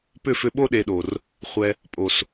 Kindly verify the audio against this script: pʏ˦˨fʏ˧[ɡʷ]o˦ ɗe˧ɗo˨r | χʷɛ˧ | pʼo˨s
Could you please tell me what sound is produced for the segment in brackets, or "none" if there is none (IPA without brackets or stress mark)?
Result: ɓ